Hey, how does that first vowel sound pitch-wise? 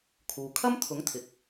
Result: low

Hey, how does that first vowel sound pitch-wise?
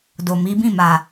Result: low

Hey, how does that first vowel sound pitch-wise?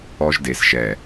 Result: high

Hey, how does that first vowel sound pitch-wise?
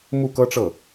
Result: falling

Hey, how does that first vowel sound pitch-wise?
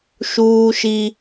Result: high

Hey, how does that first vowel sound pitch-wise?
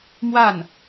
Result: falling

